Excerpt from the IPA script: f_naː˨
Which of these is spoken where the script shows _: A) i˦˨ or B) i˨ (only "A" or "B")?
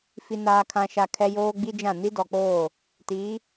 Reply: B